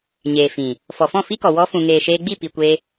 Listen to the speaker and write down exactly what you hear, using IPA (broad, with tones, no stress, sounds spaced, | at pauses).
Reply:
ɲ eː˨ f ĩ˨ | f ɔ˨ f ɔ̃˦˨ f i˦ k ɔ˨ w ɔ˧ f ũ˨ ŋ eː˨ ʃ eː˧ ɡ͡b i˦˨ p i˨ kʷ e˧